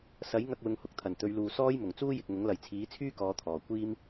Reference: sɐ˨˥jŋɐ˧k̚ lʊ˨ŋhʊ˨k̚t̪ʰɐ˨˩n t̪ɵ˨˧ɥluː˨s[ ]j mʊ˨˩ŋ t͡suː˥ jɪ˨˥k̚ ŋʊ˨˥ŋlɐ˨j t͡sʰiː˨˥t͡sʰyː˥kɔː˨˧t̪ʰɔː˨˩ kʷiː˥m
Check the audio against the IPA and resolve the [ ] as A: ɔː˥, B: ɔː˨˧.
A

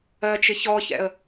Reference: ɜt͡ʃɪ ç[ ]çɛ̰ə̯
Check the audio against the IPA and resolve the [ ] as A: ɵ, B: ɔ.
B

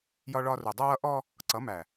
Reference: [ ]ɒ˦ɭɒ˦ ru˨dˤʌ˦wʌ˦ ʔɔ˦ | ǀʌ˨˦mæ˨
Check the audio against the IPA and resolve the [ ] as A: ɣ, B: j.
B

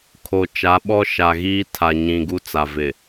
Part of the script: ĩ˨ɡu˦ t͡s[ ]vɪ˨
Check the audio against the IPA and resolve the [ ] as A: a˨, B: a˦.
A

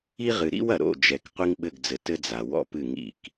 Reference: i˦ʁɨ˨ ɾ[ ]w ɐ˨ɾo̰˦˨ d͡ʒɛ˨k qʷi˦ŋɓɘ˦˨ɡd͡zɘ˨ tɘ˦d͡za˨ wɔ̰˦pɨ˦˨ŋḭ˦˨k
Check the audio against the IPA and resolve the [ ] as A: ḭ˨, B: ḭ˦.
B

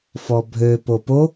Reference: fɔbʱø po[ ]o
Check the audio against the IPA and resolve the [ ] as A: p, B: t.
A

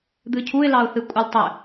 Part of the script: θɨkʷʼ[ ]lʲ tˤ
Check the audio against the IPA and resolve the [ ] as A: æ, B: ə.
B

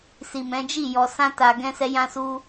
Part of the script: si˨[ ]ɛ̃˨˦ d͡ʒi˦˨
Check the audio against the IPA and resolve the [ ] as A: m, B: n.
A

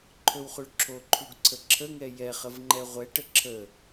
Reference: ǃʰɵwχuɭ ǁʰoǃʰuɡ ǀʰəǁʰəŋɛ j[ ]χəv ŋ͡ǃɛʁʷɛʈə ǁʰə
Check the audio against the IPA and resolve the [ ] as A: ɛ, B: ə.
A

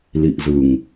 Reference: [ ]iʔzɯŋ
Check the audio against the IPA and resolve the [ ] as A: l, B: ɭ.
A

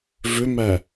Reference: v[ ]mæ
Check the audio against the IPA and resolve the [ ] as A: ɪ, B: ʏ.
B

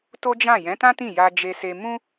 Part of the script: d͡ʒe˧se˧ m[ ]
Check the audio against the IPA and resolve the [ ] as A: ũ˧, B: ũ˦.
B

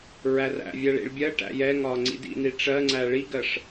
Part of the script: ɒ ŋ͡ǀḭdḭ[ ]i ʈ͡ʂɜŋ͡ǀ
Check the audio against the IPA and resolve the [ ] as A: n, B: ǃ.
A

